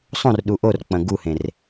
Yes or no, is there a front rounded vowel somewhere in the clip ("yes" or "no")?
no